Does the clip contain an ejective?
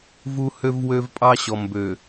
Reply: yes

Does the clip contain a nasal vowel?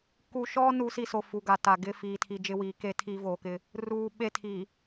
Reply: no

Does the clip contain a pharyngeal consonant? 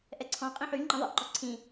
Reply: yes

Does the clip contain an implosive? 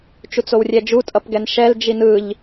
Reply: no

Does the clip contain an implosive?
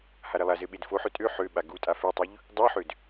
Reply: yes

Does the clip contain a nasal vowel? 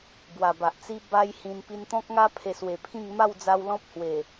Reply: yes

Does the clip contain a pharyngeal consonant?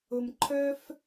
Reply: no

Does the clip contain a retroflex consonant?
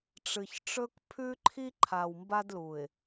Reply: yes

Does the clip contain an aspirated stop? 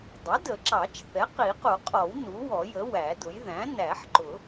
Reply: no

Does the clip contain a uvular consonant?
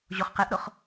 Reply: yes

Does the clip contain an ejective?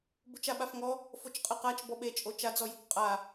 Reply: yes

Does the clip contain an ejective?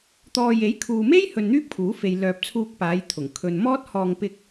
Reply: no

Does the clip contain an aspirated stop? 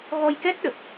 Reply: no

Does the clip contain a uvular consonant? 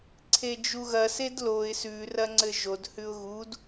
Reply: no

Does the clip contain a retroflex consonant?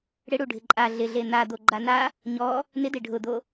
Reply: yes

